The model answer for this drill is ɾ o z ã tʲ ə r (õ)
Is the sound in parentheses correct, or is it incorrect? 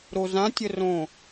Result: correct